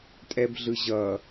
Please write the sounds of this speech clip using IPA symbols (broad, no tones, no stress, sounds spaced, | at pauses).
tʼ ɛ b ɮ ɯ ʑ ʌ